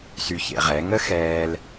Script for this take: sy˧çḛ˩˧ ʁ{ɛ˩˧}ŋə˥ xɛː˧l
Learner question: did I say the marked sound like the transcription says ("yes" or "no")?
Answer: yes